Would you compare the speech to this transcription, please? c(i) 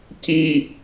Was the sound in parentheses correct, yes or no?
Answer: yes